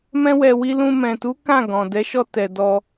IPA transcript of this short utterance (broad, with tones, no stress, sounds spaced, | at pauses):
m ɛ̃˦ w ɛ˧ w i˧ l ũ˧ m ɛ̃˨ t u˨˦ k ã˦˨ ɡ ɔ̃˨ d ɛ˨˦ ʃ ɔ˧ t ɛ˨ d ɔ˧